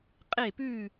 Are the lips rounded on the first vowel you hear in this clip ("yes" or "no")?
no